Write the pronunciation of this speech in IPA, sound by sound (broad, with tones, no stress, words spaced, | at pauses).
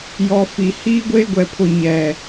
jɔ˨ fi˨ hiː˦ɡʷeː˦ɡʷɛ˨pʰʊ˨ ɲɛ˨